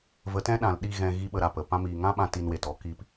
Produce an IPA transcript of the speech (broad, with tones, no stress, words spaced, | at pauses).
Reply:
və˨˦tɛ̃˦ɗã˨l ɗi˦˨ɣɛ̃˧ ɣi˦ɓə˧ɾa˨pə˨ pã˧miː˨ŋã˦ɓã˧ ti˧nwe˨tɔ˦ ki˨˦p